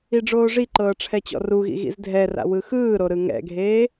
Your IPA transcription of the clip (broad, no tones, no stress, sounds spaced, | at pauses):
i ɖ͡ʐ oː ʐ i ǃ ɤː ʈ͡ʂʰ ɛ t͡ɕ ɔ̰ r u ɣ ḭ ɣ ḭ z dʱ ɛ r a̰ w ɯ x ɯː ɾ o ɾ ɯ ŋ ɛ̰ ɡʱ eː